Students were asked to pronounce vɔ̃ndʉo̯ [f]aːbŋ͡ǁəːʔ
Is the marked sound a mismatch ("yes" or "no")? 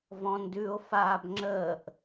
no